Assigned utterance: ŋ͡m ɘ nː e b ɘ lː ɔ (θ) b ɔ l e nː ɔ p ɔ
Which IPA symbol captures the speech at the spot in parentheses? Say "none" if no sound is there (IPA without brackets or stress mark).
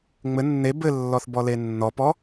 θ